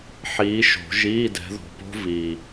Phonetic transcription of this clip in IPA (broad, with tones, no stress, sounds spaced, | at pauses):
ħ iː˨˦ ʃ o̤˨˩˦ ʒ iː˧˥˧ d ɛ̤˨˦ ð ɔ̤˨˩ p o̤˦˥ v iː˨˩